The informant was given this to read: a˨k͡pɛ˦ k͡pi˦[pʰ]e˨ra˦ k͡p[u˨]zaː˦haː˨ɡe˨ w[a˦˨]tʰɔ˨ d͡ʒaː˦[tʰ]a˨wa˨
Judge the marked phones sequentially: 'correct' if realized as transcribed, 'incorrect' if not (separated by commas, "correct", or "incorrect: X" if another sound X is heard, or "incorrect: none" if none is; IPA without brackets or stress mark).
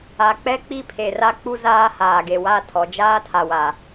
correct, incorrect: u˦, correct, correct